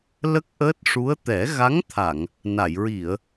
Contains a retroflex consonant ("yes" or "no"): yes